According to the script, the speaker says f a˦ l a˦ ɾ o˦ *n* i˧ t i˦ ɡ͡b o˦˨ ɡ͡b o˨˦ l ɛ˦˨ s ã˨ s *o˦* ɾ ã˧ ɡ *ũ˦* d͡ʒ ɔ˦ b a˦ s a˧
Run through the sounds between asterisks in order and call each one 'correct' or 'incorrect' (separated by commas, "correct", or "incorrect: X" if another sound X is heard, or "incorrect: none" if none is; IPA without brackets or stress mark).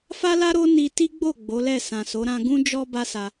correct, incorrect: o˨˦, correct